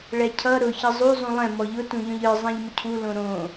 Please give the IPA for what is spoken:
ɭɛcʰʌ ɾʊ çʌzˤu zˤũlˠɛ̃ mɔʎʊ tũʎɔ̃ʎə˞ zˤɛ̃ʎmʊcʰu lõɾõ

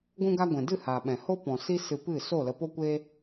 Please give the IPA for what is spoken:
ɡʷũ˦ɡa˦ ɡʷɛ̃˨dɨ˦˨haː˨ɓɛ̃˨ ho˦pɔ̃˨ si˦sɨ˧pɨ˦˨ so˦˨lə˧po˦kʷeː˦

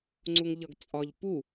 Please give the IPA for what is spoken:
ŋ͡ǀuŋʎʌɡt͡sʼɒʎ pu

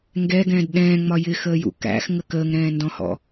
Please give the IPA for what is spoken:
ŋɡɛɡɛ̃ːd ɗɛ̃ːŋ͡mɒ jɪxəːjṵ kæ̰xŋə kəːŋɾɛ̃ːndɔ̃hɔ̰

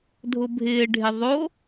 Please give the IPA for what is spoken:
dʱʊbʱɪːɖʱɪ ðˤo

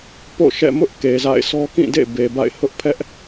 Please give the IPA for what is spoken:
po̰˦˨ʃɛ̰˦˨ mʊ˦ʔ ke˨za̰˦˨ɪ̯ sʰɔ˦kĩ˦˨dḛ˦˨ be˨ba̰˦˨ɪ̯ hʊ˦ʔpʰɛ˦ʔ

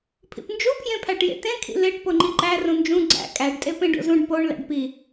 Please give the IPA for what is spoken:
pʰḭpnd͡ʒupʰjẽpʰæʈ jḛtẽkʰḭ leʈ poŋ͡ǃiǃæ rũnd͡ʒũ ɡ͡ǀæ̰ kʼæɖtʼe pẽɖo̰zũɖ poɳ læ̰ɖpi

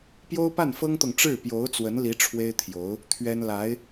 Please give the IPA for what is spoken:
pjo˥ʊ̯pa˥˩nfɤ˥ŋt̪ɤ˨ŋ ʈ͡ʂɻ̩˥˩pjo˧˥ʊ̯t͡swə˧˥nli˧˥ ʈ͡ʂʰwe˥ɪ̯t̪ʰjo˧˥ʊ̯ | t̪ʰɥɛ˥n la˧˥ɪ̯

